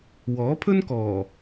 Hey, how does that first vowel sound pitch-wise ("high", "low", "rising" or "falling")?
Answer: rising